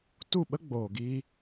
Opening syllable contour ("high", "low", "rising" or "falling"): falling